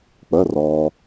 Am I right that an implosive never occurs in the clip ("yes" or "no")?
yes